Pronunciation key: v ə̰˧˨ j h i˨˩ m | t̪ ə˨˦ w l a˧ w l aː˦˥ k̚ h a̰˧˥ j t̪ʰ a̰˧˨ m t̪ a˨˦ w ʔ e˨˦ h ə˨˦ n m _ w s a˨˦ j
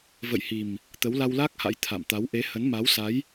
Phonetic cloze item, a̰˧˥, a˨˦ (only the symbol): a˨˦